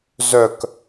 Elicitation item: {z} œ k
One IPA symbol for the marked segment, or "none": z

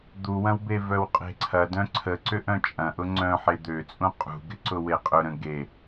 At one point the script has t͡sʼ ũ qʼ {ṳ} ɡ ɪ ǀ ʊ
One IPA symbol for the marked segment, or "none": ṳ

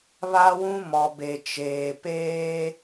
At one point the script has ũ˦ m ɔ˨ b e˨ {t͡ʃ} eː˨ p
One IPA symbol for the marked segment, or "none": t͡ʃ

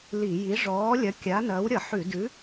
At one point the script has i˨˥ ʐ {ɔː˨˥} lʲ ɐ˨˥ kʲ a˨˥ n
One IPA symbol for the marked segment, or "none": ɔː˨˥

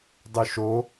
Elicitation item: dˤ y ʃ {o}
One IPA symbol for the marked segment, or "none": o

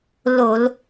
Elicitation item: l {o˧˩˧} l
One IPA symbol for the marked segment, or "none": o˧˩˧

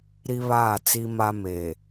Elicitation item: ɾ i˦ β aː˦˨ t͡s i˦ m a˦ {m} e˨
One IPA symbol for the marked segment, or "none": m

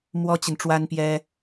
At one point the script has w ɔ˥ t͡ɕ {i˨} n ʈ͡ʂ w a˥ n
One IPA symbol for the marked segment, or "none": i˨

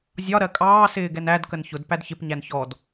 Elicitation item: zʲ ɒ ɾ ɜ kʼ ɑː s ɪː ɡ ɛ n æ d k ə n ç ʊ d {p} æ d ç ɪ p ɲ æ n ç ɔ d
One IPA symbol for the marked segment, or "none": p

